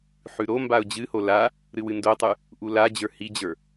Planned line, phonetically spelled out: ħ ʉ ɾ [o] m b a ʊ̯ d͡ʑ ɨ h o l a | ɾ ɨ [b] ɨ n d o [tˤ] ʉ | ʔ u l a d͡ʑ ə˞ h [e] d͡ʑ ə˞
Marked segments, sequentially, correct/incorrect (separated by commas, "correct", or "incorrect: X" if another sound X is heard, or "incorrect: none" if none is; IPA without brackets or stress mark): correct, incorrect: w, correct, incorrect: i